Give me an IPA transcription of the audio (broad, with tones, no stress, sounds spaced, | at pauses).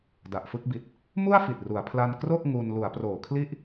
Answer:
d a˨˩ ʔ f ɯ˥˩ k̚ b i˨˩ t̚ | m u˥˩ a̯ f i˨˩ t̚ r u˩˦ a̯ pʰ l a˧ n k r o˥˩ k̚ ŋ u˧ n l u˩˦ a̯ p r oː˩˦ kʰ l i˦˥ ʔ